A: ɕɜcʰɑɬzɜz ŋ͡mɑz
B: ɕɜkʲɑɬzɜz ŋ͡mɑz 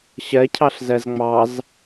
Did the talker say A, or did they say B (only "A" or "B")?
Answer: A